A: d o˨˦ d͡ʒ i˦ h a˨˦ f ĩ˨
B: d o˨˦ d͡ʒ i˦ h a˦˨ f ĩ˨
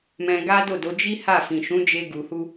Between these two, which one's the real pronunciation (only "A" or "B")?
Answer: B